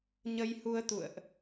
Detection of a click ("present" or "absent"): absent